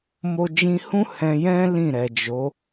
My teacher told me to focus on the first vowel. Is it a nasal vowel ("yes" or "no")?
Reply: no